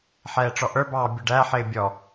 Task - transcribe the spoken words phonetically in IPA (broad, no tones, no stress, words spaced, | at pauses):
ħɛːʈ͡ʂɔʔə˞bɑː bʲʊɖæħɪː bʲɔ